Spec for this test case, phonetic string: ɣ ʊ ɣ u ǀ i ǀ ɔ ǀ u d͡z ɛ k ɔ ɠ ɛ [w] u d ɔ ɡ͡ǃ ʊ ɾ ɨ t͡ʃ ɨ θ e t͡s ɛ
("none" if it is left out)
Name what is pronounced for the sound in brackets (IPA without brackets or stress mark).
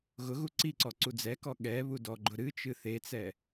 β